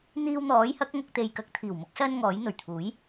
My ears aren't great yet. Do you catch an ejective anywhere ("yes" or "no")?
no